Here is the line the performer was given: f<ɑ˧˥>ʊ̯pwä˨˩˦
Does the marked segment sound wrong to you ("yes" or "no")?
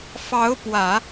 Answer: no